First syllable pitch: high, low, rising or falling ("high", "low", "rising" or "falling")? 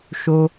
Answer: high